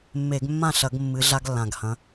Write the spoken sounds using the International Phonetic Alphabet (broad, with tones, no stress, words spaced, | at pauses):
mːe˧˩˧ɡmːã˥˩ɬɐ˧˩˧ɡ mːɨ˨˦ɮa˦ɡlːã˨˩ɡhɐ̃˨˦